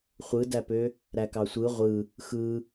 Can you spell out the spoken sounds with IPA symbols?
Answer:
χʷ ɯ d æ p ø | ɾ æ k ɑ sʷ ɯ ʁʷ ɯ | x ɯ

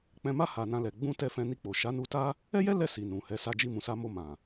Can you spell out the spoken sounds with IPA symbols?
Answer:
k͡p ɛ̃˧ m a˦ h a˧ n ã˦ l ɛ˧ ɡ͡b ũ˦ t ɛ˦ f ɛ̃˧ n i˧ k͡p o˨ ʃ a˨˦ n u˧ t a˦ | ɛ˦ j ɛ˦ l ɛ˦˨ s i˨ n ũ˨ h ɛ˨˦ s a˧ d͡ʒ i˧ m ũ˨ s a˨˦ m o˧ m ã˨

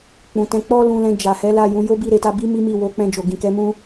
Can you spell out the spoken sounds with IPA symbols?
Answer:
k͡p ũ˨ t ɛ̃˨˦ k͡p ɔ˦ l ũ˧ l ɛ̃˧ d͡ʒ a˨ h ɛ˨˦ l a˦˨ j ũ˧ j o˦ b i˦˨ ɾ e˧ t a˧ b i˦ m i˦ m i˦˨ w o˨˦ k͡p ɛ̃˧ d͡ʒ o˨ ɡ ĩ˨ k ɛ˨˦ m ũ˦

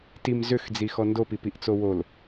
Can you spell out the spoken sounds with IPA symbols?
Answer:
t i m z ʏ x d͡z i x ɔ n d o p i p i ʔ t͡s o w o l

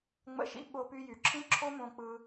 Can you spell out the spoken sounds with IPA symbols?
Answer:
ŋ͡m ə̰˦ ʃ ḭ˦ ɓ o˧ p y˧ j y˨ ǁʰ ĩ˦ ǁʰ o˦ m õ˧ k͡p ɯ˧

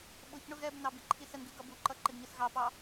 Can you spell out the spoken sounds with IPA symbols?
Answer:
ɓ ʊ ç ɳ ʊ ɣ ɛ b n ɑ b i ǃʰ i s ə n ɡ i ɡ ʌ b u ǃ ʌ ǃ ɪ ɡ ɲ ə s ɣ ɑ p ɑ

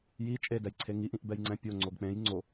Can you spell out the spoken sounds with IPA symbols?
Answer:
j i t͡ʃʼ e d ɛ j ǀʰ e ŋ i ʔ ĩ ʔ b ɛ j ŋ͡ǀ ɛ̃ pʲ o ŋ͡ǀ o ɡ k͡p ẽ j ŋ͡ǀ o

